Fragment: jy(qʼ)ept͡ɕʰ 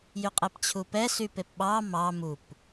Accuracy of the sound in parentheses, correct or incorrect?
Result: correct